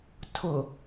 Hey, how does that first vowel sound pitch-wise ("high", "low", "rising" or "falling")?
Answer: low